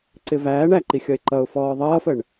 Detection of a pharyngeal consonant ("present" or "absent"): absent